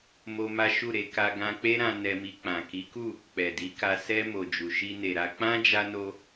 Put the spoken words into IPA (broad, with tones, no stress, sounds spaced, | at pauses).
m o˦ m a˦ ʃ u˦˨ ɾ e˧ k a˧ ɡ ã˧ k͡p e˦ ɾ ã˧ n ɛ˧ m i˧ k͡p ã˨ k i˨˦ k u˦˨ | k͡p ɛ˨ d i˨˦ k a˧ s ɛ˧ m o˨ d͡ʒ u˨ ʃ i˧ n e˨ ɾ a˧ k͡p ã˦ d͡ʒ a˧ n o˧